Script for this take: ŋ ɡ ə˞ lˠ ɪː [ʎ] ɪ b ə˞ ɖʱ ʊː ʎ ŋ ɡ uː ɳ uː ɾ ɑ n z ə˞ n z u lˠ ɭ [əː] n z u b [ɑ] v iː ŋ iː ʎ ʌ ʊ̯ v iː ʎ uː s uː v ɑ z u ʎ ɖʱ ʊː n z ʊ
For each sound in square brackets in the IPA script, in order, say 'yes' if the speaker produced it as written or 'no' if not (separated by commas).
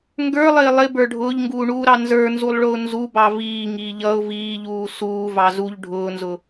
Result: no, no, yes